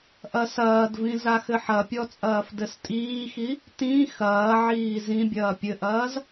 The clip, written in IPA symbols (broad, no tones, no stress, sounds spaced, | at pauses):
ʔ ɐ s ɐː d v ĩ z a x ɘ ħ ɐ pʲ ɔ t͡sʼ ɐː f d ɘ s tʼ iː x i | t ĩ x ɐː ʕ iː z ĩ bʲ ɐː pʲ ɘ ʔ ɐː z